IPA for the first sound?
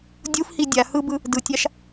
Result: dʲ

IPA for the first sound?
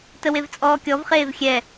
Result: t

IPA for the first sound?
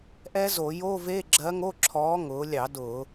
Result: ʔ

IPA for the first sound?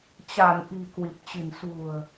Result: t͡ɕ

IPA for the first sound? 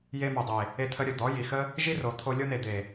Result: j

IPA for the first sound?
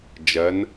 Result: d͡ʒ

